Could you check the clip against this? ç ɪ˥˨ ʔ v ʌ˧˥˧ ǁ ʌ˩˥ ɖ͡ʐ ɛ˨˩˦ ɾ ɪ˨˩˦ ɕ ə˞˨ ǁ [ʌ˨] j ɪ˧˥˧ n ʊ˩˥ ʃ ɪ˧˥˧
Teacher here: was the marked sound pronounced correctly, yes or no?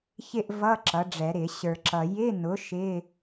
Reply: yes